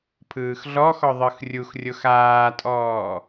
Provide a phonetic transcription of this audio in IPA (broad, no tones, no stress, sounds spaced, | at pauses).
pʰ ɯː x ɮ ɔ x ɔ ðˤ ɯ x rʲ u x rʲ o x aː tʼ ɔː